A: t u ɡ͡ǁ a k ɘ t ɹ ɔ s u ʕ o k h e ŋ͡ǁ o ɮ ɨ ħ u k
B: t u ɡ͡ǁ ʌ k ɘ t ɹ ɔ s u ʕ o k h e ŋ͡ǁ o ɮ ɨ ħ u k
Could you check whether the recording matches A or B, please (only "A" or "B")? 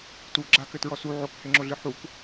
A